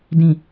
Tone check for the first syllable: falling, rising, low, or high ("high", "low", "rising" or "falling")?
low